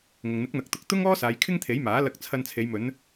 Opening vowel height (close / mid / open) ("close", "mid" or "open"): close